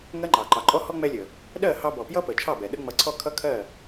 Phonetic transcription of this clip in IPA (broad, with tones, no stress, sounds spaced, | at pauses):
ŋ ɜ˦ ŋ͡ǃ ɑ˨ ǃ ɑ˨ ǃʼ ɔ˦ h ɔ˦ ŋ͡m ɛ˧ lʲ ə˨ | ɗ ɜ˦˨ h ɑ˧ b ɔ˨ p j ʌ˦ p ə˨ t͡ʃʰ ɑ˦˨ b ɛ˨ ɗ ə˦ ŋ͡m ʌ˧ ǀʰ ɔ˦˨ kʰ ʌ˦ kʰ ɜ˦˨